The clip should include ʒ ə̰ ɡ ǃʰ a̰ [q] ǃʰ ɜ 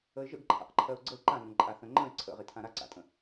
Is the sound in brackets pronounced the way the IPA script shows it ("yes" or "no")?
yes